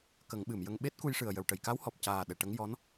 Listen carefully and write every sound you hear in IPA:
k ə˨˩˦ ŋ ɓ ɨ˨˩˨ m j ə˧ ŋ ɓ e˦˥ t̚ k u˧ j ʂ ɨ˨˩ ə̯ j ə˨˩˨ w ʈ ə˨˩˨ j k a˧˥ w h ɔ˨˩ p̚ c aː˨˩ ɗ ɛ˨˩ ʈ ə˧˥ ŋ j ɔ˧˥ n

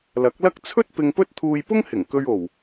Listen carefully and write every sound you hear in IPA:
l ɐ˨˥ k̚ l ɐ˥ k̚ t͡sʰ ɵ˥ t̚ p ɪ˧ ŋ p ɵ˥ t̚ t̪ʰ uː˧ j p ʊ˥ ŋ h ɪ˨˩ ŋ k ɵ˧ ɥ o˨˩ w

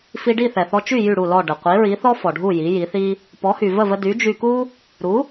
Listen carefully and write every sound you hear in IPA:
f i˧ ɖ i˥˩ θ ɛ˩ θ ɔ˧ t͡ʃ y˥˩ j y˥˩ ɽ u˥˩ l ɔ˥˩ ɖ ə˩ qʷ i˩˥ ɹ i˩˥ θ ɔ˥ f ɔ˩ ɖʱ u˥˩ j i˩˥ j i˩˥ θ i˥ | p ɔ˩˥ h y˩ v ə˥˩ v ə˧ d y˩˥ d͡ʒ y˧ k u˥ | ɾ u˩˥

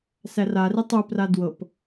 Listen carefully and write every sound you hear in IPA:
s æ r a r i tˤ u p r a d w ɤ p

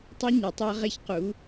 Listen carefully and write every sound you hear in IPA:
tˤ i˦ ɲ e˩˧ tˤ a˦ ʁ e˦ ç q u˩˧

